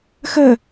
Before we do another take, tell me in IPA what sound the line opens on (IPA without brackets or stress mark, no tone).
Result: x